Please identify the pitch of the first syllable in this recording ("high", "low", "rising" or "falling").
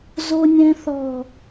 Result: high